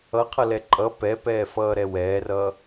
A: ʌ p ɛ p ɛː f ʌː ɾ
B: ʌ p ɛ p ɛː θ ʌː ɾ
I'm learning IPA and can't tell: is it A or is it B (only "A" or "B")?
A